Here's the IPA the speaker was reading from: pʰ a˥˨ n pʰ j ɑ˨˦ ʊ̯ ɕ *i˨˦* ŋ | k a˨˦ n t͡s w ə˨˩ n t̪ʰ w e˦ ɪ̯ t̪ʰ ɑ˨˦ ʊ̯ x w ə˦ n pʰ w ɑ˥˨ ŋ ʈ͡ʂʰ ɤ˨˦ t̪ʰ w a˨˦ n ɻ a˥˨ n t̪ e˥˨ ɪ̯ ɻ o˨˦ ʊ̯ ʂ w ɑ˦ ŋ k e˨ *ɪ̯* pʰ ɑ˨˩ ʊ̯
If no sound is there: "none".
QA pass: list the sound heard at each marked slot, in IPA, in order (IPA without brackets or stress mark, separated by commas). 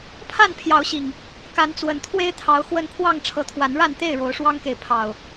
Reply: i˨˩, ɪ̯